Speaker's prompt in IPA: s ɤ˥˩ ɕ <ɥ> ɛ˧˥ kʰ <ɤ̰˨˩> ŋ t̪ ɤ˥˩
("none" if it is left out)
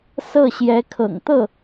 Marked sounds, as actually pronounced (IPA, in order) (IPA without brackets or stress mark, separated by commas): j, ɤ̰˨˩